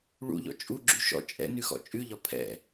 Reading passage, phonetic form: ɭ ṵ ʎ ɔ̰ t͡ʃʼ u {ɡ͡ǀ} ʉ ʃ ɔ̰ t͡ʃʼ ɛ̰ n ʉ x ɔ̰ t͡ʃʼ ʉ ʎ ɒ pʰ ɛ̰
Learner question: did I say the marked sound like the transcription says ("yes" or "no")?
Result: no